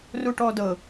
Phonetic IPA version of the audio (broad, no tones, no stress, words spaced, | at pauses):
ruʈɔdɤ